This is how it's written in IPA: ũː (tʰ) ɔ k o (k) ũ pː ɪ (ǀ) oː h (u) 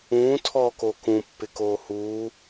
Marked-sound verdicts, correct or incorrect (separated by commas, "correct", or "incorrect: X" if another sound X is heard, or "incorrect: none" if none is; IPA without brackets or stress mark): correct, correct, incorrect: k, incorrect: uː